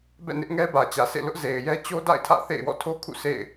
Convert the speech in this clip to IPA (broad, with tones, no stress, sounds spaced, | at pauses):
b ɛ̰˦˨ n ɪ˦ ʔ ŋ ɛ˦ b ä˨ t͡ɕ ä˨ s ḛ˦˨ l ʊ˦ ʔ z e˨ ɪ̯ j ɛ˦ t͡ɕ o˦ d a̰˦˨ ɪ̯ tʰ ä̰˦˨ θ ḛ˦˨ ɪ̯ w ɔ̰˦˨ tʰ o˦ kʰ ṵ˦˨ s ḛ˦˨ ɪ̯